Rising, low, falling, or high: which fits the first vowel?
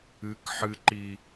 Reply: rising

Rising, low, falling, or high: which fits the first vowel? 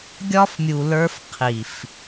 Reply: high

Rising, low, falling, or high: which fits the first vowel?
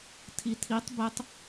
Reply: low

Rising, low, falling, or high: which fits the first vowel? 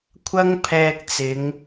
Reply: high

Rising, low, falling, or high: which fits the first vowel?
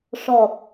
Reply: low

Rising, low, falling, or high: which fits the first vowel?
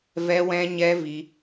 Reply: high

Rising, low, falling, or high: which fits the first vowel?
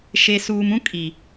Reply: low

